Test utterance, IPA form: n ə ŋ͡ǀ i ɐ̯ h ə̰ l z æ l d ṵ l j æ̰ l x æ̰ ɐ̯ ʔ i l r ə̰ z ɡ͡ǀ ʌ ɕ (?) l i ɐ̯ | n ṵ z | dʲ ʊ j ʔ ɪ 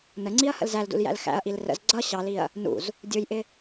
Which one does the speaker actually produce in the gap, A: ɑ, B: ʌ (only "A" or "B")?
A